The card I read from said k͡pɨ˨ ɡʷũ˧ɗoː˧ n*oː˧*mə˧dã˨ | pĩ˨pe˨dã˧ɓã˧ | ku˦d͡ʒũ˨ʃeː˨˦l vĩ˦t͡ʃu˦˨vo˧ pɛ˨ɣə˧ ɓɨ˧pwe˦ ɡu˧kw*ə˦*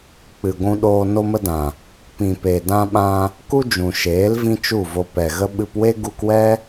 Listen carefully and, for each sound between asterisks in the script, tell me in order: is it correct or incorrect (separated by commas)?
incorrect, incorrect